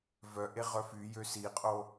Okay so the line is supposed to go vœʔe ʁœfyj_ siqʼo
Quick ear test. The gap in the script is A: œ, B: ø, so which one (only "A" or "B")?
B